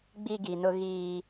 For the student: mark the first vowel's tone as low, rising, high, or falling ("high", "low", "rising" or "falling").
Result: high